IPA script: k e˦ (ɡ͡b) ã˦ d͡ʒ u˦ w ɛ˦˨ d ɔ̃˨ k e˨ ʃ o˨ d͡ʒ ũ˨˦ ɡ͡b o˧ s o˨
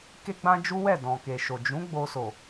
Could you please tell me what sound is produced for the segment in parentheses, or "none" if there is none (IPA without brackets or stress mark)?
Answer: ɡ͡b